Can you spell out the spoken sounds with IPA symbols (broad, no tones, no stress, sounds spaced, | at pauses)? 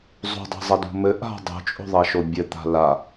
zˤ ṳ dˤ a̤ zˤ ɐ d ṳ m ɘ ʔ a̤ dˤ o̤ t͡ʃʼ o̤ ðˤ ɐ ʃ o bʲ ɘ t̪ a̤ l a